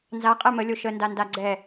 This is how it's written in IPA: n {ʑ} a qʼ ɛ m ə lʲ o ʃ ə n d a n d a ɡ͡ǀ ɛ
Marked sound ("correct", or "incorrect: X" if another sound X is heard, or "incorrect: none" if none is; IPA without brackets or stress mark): incorrect: z